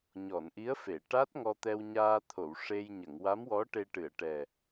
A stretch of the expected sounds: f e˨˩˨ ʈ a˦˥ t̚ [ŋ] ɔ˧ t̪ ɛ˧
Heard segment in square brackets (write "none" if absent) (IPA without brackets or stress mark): ŋ